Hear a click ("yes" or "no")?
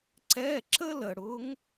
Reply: yes